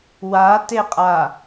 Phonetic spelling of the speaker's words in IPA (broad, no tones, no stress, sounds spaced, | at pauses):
w a t e qʼ a